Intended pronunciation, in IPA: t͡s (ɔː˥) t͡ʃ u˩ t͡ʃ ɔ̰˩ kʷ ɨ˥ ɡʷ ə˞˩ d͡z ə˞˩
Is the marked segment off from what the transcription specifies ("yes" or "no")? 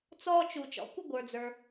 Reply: no